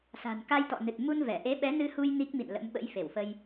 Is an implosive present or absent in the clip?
present